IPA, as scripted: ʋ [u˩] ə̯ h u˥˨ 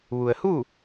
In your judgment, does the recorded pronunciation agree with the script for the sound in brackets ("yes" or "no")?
yes